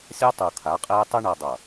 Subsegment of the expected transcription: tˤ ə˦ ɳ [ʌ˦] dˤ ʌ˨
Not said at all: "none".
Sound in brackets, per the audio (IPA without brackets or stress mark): ʌ˨